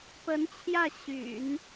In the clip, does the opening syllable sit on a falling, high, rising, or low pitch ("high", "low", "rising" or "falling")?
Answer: rising